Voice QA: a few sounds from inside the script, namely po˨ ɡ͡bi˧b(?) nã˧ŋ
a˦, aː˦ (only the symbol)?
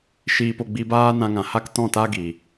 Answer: aː˦